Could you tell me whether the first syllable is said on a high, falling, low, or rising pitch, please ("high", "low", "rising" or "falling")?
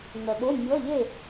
low